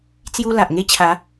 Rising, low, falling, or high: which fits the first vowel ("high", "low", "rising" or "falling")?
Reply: high